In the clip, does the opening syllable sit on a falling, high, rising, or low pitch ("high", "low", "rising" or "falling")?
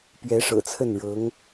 rising